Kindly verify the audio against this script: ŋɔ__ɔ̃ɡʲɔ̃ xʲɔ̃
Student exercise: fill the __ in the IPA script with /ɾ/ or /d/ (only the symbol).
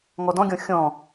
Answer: d